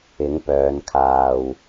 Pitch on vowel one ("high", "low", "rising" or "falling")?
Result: rising